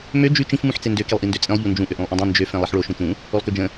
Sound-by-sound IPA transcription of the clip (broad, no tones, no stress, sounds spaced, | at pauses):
m ø d͡ʒ ʉ t͡ʃ ĩ f m ũ ħ t͡s e n d ø k i lˠ ʔ i n d ø t͡sʼ ĩ lˠ ʎ u n d͡ʒ ũ ʔ ø ʔ ũ lˠ ʔ ũ dˤ ĩ n d͡ʒ ø f ẽ lˠ i ħ ɭ o ʃ ũ t͡ʃ ũ | o lˠ k ø d͡ʒ ə̃